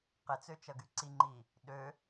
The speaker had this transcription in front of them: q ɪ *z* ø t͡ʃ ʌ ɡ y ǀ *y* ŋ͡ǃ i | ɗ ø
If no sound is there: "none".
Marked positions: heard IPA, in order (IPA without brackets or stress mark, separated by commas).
t͡s, i